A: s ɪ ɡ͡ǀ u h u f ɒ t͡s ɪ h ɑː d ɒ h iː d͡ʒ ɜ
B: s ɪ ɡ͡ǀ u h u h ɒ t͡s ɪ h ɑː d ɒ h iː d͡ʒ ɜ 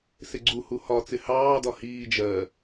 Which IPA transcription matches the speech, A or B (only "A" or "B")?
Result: B